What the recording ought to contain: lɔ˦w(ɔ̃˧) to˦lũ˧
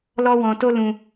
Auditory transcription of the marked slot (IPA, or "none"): ɔ̃˧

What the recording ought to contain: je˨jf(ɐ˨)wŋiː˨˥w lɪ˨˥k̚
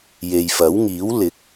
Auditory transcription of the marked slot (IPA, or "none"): ɐ˨˥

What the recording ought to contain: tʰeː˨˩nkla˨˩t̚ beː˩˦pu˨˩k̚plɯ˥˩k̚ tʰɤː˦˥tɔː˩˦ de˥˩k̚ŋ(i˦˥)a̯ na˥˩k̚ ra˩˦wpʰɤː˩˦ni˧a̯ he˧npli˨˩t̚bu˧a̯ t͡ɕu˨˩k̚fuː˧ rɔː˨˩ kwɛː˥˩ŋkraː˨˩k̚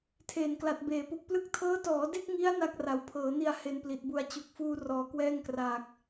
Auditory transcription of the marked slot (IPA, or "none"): i˦˥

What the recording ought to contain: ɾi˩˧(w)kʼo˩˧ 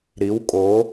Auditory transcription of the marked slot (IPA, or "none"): w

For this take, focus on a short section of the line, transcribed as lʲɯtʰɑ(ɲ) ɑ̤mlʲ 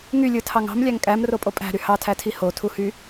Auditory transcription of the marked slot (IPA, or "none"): ŋ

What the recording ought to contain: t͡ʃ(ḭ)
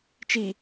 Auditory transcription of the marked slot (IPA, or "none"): i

